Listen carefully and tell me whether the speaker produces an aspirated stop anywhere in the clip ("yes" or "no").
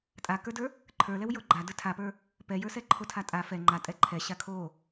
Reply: yes